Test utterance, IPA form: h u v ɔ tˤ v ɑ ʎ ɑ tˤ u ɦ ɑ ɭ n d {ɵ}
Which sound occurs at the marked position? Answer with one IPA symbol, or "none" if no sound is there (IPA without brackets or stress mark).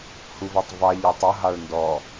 ɔ